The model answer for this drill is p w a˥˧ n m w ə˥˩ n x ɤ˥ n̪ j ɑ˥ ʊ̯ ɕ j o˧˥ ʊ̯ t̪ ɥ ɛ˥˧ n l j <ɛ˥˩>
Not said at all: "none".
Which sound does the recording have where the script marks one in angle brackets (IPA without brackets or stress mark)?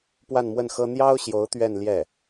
ɛ˥˩